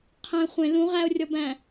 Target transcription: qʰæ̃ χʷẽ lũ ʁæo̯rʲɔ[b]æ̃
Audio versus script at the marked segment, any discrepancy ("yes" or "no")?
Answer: no